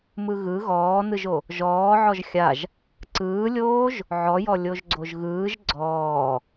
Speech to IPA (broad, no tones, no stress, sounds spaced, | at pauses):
m ɯ ɣ ɯ ɣ ɔː n ɯ ʒ o | ʒ ɔː ʕ ɔ ʒ xʲ a ʒ | ǀ ɯː lʲ oː ʒ | ʕ ɔ j ɔ lʲ o ʒ ɡ͡ǀ o ʒ ɣ ɯː ʒ ɡ͡ǀ ɔː